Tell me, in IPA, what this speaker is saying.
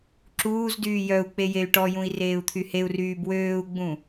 ǁ uː z d yː j œ u̯ k͡p e j e y̯ ʈ ɔ j ũ i̯ r eː u̯ t̪ʰ y h e u̯ r yː b w øː u̯ ɡ͡b ũ

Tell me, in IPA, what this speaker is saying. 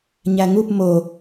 ɲ æ ŋ u p m o

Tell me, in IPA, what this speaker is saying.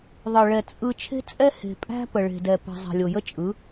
ðˤ ɯ˨ ɭ ɛ˨ t͡sʼ ɯ˦ t͡ʃʰ e̤˦ t͡sʼ ɛ˦ h e̤˨ pʼ æ̤˦ p ə˨ ɭ e̤˨ d ɛ˨ p ə̤˨ zˤ e̤˨ lʲ o˨ j ə˦ t͡ʃʼ ɯ˨˦

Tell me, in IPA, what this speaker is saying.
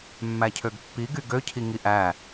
mː æ cʰ ø ɡ pː i ɡ y ɡ ø cʰ i ŋ i ʔ æ

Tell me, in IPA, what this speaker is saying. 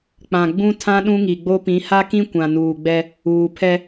k͡p ã˨ ɡ͡b ũ˦ tʰ ã˦ ɗ ũ˦ ŋ i˨ ɡ͡b o˦ p ĩ˨˦ h a˦ k ĩ˦ kʷ ã˨ n uː˨ ɡ͡b ɛ˦ | uː˨ pʰ ɛ˦

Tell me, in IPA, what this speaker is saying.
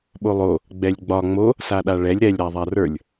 ɓ o lˠ o | ɡ͡b ɛ lʲ ɡ͡b ɒ ŋ͡m o | s a ɗ a ɭ ɛ lʲ ɾ ɛ lʲ ɾ a ðˤ a r ə˞ lʲ

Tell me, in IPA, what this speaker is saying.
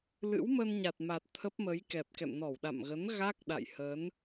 l ɨ̰˧˥ w m ə˧ n ɲ a˨˩ t̚ m a˨˩ t̚ t̪ʰ ə˦˥ p̚ m ə˨˦ j k ɛ˨˩ p̚ k ɛ̰˧˨ m n ɔ˧˩ w ɗ a̰˧˨ m ɣ ə˨˦ n ɣ a˦˥ k̚ ɗ a̰˧˨ j h ə˨˦ n

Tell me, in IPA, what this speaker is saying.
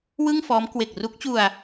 w ɯ˥˩ ŋ f ɔː˦˥ m k w e˨˩ k̚ r u˦˥ k̚ t͡ɕ u˧ a̯

